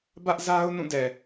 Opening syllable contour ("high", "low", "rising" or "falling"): high